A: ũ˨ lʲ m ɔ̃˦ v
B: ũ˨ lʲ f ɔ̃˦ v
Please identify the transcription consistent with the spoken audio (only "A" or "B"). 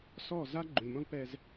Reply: A